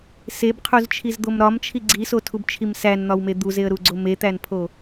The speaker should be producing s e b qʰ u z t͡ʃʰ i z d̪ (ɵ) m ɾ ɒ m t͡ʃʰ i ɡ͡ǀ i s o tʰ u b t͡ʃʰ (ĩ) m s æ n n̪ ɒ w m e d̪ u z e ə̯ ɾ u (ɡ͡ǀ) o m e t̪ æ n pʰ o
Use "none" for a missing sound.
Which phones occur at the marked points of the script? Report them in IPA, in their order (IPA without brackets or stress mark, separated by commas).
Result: o, i, ɡ͡ǀ